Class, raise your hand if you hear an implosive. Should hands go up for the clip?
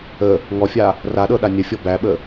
yes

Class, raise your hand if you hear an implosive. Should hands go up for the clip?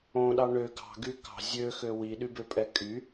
yes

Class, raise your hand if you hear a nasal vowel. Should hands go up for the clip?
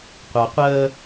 no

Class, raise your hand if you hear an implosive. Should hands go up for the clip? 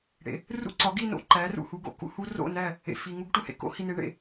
no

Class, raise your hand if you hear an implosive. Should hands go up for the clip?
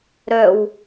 no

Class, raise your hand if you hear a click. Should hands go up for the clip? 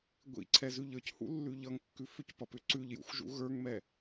yes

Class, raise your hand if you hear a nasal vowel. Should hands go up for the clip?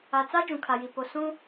yes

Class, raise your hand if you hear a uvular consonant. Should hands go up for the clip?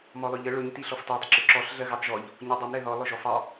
no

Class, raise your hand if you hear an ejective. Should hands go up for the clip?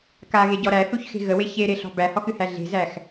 no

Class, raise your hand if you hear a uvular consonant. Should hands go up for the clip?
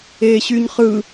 yes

